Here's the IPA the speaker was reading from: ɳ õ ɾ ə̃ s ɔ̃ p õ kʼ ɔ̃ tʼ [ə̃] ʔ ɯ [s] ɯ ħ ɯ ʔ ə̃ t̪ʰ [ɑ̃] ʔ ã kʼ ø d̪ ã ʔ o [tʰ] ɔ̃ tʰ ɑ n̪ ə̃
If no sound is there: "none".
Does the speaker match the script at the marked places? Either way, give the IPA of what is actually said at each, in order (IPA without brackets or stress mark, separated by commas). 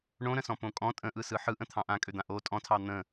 ə̃, s, ɑ̃, tʼ